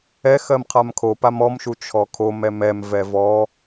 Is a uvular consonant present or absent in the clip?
present